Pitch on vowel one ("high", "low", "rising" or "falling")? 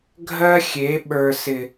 high